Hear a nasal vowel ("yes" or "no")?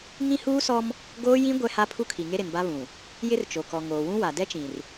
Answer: yes